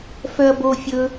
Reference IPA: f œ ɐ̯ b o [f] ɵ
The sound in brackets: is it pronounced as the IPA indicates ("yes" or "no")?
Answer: no